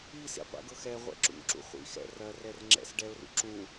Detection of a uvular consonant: present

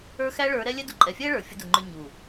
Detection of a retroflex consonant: present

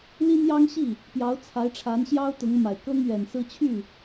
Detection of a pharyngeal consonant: absent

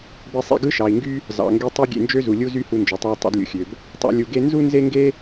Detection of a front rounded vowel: present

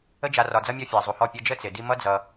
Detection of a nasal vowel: absent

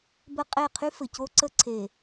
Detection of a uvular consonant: present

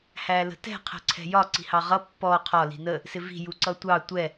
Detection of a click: present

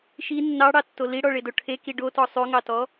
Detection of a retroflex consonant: present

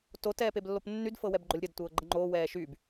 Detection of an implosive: absent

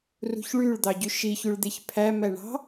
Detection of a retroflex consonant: present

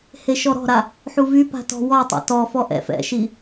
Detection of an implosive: absent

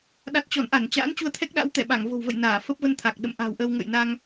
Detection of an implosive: present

